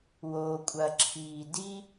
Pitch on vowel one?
low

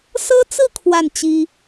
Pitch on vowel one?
high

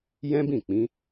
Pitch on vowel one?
high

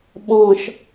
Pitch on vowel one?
low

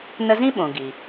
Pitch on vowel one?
high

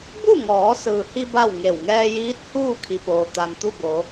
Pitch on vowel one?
falling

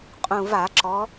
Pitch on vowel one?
low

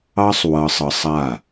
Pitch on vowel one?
high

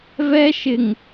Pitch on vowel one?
high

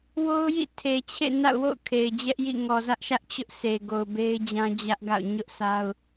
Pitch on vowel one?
high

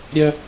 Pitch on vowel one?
high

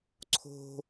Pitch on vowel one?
high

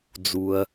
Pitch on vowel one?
low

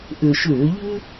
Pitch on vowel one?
low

